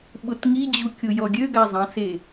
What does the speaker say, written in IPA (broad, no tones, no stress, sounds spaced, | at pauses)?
ɓ ʊ t ŋ i d͡ʑ u kʲ ʊ j ɔ ɡʲ ø ɡ a zˤ ɐ̃ s e